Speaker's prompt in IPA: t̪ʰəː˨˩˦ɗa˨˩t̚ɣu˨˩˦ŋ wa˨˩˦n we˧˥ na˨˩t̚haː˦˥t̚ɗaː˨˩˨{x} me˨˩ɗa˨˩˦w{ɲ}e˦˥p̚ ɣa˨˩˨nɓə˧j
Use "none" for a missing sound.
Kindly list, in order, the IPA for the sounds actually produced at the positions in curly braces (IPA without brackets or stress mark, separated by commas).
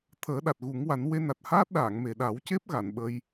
ŋ, c